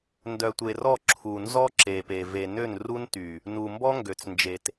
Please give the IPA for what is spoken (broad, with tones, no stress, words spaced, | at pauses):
ndœ˨tʷe˨ rɔ˦˨ǁʰu˨ nzɔ˦ǁe˨pe˨ ve˨ nø˦˨nru˦nty˨ | nu˨mbɔ˦ŋɡø˨t͡snd͡ʒe˨t